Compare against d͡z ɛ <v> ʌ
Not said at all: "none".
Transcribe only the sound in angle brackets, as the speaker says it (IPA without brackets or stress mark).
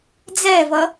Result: v